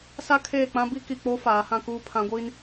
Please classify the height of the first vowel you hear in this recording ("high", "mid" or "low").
low